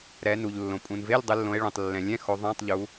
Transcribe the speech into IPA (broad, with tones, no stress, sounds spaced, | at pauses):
ɾ ɛ˩˧ n u˩ ʎ lː õ˩ pʼ ũ˩ n v e˧˥˧ lʲ dˤ ɯ˩˧ lː õ˩˧ e̯ ɭ ũ˩ tˤ lː ɛ̃˩ lʲ ɛ̃˧˥˧ x o˩˧ ðˤ ã˧˥˧ tˤ ʎ u˩˧